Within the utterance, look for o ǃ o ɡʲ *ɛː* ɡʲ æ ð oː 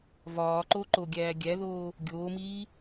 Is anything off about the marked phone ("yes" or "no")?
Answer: yes